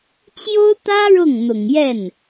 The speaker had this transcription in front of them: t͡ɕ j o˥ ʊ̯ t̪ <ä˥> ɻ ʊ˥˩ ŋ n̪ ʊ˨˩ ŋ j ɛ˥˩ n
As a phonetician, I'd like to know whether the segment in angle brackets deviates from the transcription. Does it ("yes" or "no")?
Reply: no